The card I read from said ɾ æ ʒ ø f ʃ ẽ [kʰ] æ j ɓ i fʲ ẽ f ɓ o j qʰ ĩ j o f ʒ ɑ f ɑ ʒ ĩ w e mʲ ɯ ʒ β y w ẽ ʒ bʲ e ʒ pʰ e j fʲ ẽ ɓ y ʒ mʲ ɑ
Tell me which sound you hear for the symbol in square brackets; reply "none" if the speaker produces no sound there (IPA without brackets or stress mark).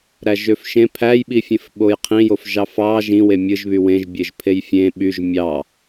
pʰ